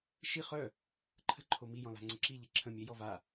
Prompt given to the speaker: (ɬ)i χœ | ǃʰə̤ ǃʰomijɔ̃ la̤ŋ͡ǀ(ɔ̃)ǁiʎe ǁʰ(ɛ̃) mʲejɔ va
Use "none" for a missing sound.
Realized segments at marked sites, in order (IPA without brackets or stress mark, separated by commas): ʃ, ə̃, ə̃